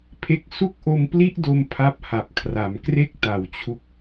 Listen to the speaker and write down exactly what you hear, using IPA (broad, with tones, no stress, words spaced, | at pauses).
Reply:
pʰe˦˥k̚ su˥˩k̚ʔo˧mpli˥˩ʔdo˧m pʰa˦˥p̚ha˨˩p̚kʰra˩˦m kre˥˩k̚ta˨˩wt͡ɕʰu˦˥k̚